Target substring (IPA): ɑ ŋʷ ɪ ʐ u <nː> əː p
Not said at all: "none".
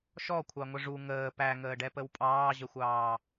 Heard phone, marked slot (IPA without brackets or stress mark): ŋ